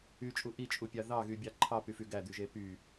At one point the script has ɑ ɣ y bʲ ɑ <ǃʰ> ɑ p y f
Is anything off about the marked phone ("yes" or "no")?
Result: no